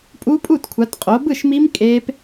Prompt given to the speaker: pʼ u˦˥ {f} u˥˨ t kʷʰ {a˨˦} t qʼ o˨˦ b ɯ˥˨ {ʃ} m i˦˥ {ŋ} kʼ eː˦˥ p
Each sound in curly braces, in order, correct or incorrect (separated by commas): incorrect, correct, correct, incorrect